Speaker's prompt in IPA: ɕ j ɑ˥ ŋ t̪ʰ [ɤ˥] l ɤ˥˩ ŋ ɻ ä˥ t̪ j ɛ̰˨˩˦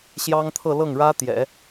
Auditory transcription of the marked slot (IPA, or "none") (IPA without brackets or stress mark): ɤ˥˧